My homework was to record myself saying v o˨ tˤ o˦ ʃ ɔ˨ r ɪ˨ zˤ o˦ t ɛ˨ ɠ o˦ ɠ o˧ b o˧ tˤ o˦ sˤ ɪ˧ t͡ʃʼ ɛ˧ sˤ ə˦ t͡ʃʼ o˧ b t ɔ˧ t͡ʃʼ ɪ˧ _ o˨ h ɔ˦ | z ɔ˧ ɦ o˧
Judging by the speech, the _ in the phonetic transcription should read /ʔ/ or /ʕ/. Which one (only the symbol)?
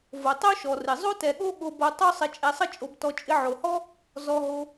ʕ